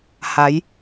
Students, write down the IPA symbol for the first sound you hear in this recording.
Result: h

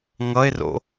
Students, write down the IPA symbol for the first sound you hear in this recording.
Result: ŋ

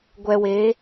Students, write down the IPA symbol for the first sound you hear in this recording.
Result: ɡʷ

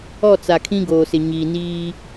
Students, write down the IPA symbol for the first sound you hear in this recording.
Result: ɔ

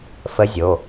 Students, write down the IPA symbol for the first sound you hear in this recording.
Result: f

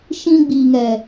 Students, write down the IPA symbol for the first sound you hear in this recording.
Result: ʃ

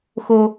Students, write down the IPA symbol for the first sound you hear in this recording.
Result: x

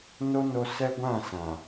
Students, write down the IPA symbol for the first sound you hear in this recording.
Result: n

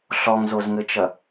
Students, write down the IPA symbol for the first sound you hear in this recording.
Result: ɬ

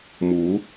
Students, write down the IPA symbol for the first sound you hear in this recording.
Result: m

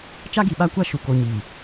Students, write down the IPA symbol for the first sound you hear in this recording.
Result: t͡ʃ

